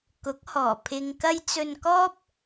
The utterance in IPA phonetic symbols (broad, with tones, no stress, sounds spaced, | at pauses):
k ʊ˨˥ k̚ h ɔː˨˩ pʰ ɪ˨ ŋ k ɐ˧ j t͡s ɵ˧ n k ɔː˥ p̚